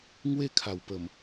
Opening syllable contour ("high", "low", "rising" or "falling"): high